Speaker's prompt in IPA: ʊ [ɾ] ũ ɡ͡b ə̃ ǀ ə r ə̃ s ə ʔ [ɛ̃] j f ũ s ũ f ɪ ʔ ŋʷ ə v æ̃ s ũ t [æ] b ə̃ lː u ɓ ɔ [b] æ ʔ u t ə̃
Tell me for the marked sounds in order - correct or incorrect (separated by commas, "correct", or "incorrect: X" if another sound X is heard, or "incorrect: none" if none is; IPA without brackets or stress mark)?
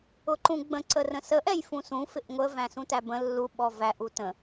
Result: incorrect: ǃ, incorrect: ɛ, correct, incorrect: v